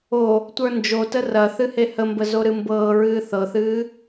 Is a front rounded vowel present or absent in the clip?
absent